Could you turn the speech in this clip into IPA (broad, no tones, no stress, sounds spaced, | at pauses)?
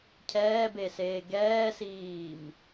cʰ ɛː b e s eː ɡ ɛː s iː m